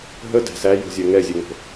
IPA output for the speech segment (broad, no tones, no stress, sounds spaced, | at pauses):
ɦ ə d æ̤ s æ j o̤ zʲ ɜ ŋ ɛ zʲ ɛ ŋ o̤